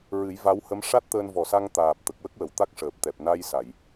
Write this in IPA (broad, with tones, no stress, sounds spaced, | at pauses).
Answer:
ɹ ɨ˨˩˦ j v a˧˥ w h ə˧˥ m ʂ a˦˥ t̚ t̪ əː˧ n v ɔ˨˩ s a˧ ŋ t̪ aː˨˩ p̚ t̪ ə˨˩ k̚ w ə˦˥ k̚ w ə˨˩˨ w t̪ a˦˥ k̚ ʂ əː˨˩ p̚ t̪ ɛ˨˩ p̚ n a˧ j s a˨˩˨ j